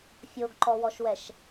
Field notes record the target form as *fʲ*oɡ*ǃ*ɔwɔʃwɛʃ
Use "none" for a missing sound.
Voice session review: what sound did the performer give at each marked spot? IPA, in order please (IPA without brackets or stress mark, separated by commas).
fʲ, ǃ